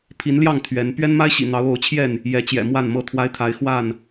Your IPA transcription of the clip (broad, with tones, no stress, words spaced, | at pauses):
pʰi˨˦nljɑ˥˨ŋ t̪ʰɥɛ˨˦n pɥɛ˦nma˦ɪ̯ɕḭ˨˩n̪ɑ˨˦ʊ̯ o˨˦ʊ̯t͡ɕʰjɛ˥˨n | jɛ˨˦t͡ɕjɛ̰˨˩ mwa˥˨nmɤ˥˨t̪ʰwa˦ɪ̯ t̪ʰa˨˦ɪ̯ xwa˥˨n